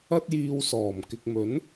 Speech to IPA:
ɐ˥ t̚ j iː˧ w s ɔː˨˩ m k ɪ˨ k̚ m ɵ˨˥ n

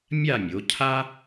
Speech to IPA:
mʲ a˥˧ mʲ o˩˧ cʰ a˥

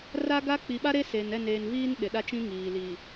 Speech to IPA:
r a˦ ɡ a˦ k͡p i˨ ɓ a˦ ɾ e˦ s e˨ n ɛ˦˨ n eː˨ n v iː˦ n ɗ ɪ˨ ɗ a˦ t͡ʃ ĩ˦ ŋ iː˨ l i˨

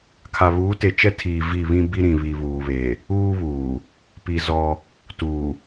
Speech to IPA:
kʰ a˨ β uː˨˦ t e˨ t͡ʃ ɛ˦ tʰ iː˨ v i˦˨ β ĩ˦ b i˦ ɾ ĩ˨ β i˨ β uː˨ β e˨ | uː˦ β uː˨ | p i˨ z ɔ˦ | t uː˨

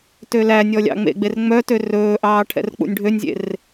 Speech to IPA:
t ø l æ nʲ ɔ lʲ ɑ̰ ŋ͡m ḛ ɡ͡b e r ŋ͡m œ t ø r ɵː ʔ ɑː ʈʰ ɛ̰ r k͡p ṵ nʲ ɖʱ ø nʲ zʲ ḛ r

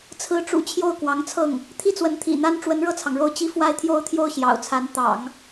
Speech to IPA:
t͡sʰ ɹ̩˧˥ ʈ͡ʂ ṵ˨˩ t͡ɕʰ j o˥˩ ʊ̯ k w ɑ˧˥ ŋ t͡sʰ ɤ˥˩ ŋ | t̪ʰ i˥˩ t͡s w ə˧˥ n t̪ʰ ḭ˨˩ n̪ a˥ n ʈ͡ʂ w ə˧˥ n ɻ ɤ˥˩ t͡sʰ ɑ˩ ŋ ɻ o˥˧ ʊ̯ t͡ɕ i˥˧ f w a˥˧ ɪ̯ t̪ʰ j o˥˧ ʊ̯ t̪ʰ j o˥˩ ʊ̯ ɕ j ɑ̰˨˩ ʊ̯ t͡sʰ a˧˥ n t̪ ɑ̰˨˩˦ ŋ

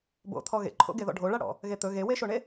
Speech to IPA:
b o̰ t̪ʰ ɔ ɣ ḛ ǃʰ o̰ ɡ e ð ɔ̰ ɖʱ o ɭ a ɽ ɔ̰ | ɣ e t̪ ɵ ɣ e w e ʃ o ɳ e

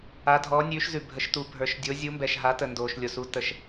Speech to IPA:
a˨˥ dʱ ɔː˨˥ nʲ ʉː˨˥ ʃ z ʉ˨ bʱ ə˨˥ ʃ t u˨˥ bʱ ə˞˨ ʃ dʲ o˨˥ zʲ u˨˥ m b ɛ˨ ʃ ɦ a˨˥ t ə˨ n d oː˨ ʃ lʲ o˨ s u˨˥ t ə˨˥ ʃ

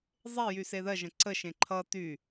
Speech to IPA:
zˤ e j y s e ð ɜ ʒ ə̃ ǀ ə ʃ ẽ ǃʰ ʌ t y

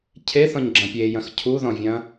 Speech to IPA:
cʰ e θ ɔ̃ ɲ ɡ͡ǁ ɐ̃ pʲ e j ɐ̃ x cʰ u ð ɔ̃ vʲ ɐ̃

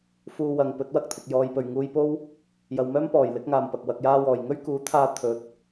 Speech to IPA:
f uː˧ w ɐ˨ ŋ p ɵ˨˥ t̚ w ɐ˥ k̚ t̪ʰ ɪ˨ k̚ j ɔː˧ j p ɵ˨˩ ɥ ŋ uː˧ j p o˥ w | j ɐ˨ w m œː˥ m p ɔː˨˩ j l ɪ˨˥ k̚ ŋ aː˨ m p ɐ˨ k̚ w ɐ˨ k̚ j aː˧ w ɔː˨˩ j ŋ ɵ˥ ɥ k uː˨˥ t̪ʰ aː˧ t̪ʰ ɵ˨˥ t̚

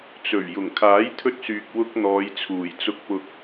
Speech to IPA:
t͡s ɵ˨˩ ɥ j ʊ˨˩ ŋ kʰ aː˨˥ j t̪ʰ ɵ˧ t̚ s yː˨ k̚ w ʊ˧ k̚ n̪ ɔː˨˧ j t͡sʰ uː˨˩ j t͡s ʊ˧ k̚ p ʊ˧ k̚

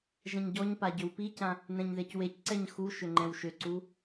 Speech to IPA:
ʒ ɛ̃ ɲ ɟ ɔ ɲ p a ɟ ʏ w p i c ã | n ɛ̃ ɲ ð e c w e c ǀ ɛ ɲ x u ʃ ʏ ŋ͡ǃ ɛ̃ w ʃ ʏ ǀ u

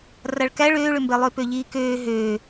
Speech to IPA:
r a ɭ k æ ɭ øː ɭ ø m b ɛ lˠ ø p ø ʎ iː k øː ɦ øː

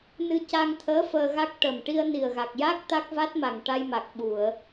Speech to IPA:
n ɨ˧ c a˧ ŋ t̪ʰ əː˧˥ f əː˧ ɣ a˦˥ k̚ ʈ ə˨˩ m ʈ i˧ ə̯ n i˨˩ ə̯ ɣ a˨˩ k̚ j a˦˥ k̚ t̪ a˦˥ k̚ v a˦˥ t̚ m a˨˩ ŋ ʈ a˧ j m a˨˩ k̚ ɓ u˨˩˨ ə̯

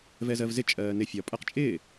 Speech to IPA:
v ɛ z ɜ v z ɪ t͡ʃʼ ɜː n ɪ fʲ ɒ pʼ ɜ q t͡ʃʼ ɪː

